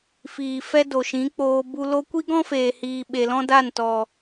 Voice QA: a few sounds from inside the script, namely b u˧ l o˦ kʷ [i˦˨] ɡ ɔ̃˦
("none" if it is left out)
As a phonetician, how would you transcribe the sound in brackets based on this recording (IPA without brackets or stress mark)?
i˦